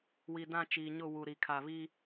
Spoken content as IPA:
wi˨dã˦˨t͡ʃiː˨ɲʊ˦˨ wu˨ɾi˨kʰa˨βi˦

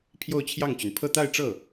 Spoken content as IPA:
pʰjo˥˧ʊ̯t͡ɕʰjɑ˥˩ŋt͡ɕy˩n pʰɤ˥˧t̪a˥˧ɪ̯ ʈ͡ʂɤ˥˩

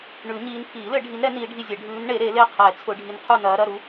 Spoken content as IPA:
ɳʉ˨˩˦ɲiː˨˦n pʰiː˨˩˦lɘ˨˩˦ɖʱi˨˦nɾɛ˨˩˦ niː˨˦ɖʱi˦˨zʲɛ˨˩˦ ɖʱʉː˨˦nɳe˨˩˦ ɾe˨˩˦le˦˨ qʰɛ˨˩˦ t͡sʰʊ˨˦ɖʱi˨˦nqʰu˦˨nɐː˨˦ ɾɐ˦˨ɾu˨˦

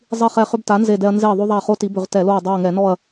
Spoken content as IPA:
zˤi˦˨χɛ˦˨χʏ˦bta˨˥ nze˦˨dɛ˦ɐ̯ nze˦˨ðˤo˦ðˤa˦˨χo˦ ti˨˥bʏ˧˩˧ʁtɛ˧˩˧lo˦˨ɐ̯ dˤo˦˨ɐ̯ŋɛ˧˩˧nɔ˦˨ɐ̯

